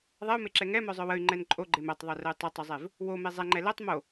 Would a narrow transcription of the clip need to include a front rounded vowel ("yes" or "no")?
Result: yes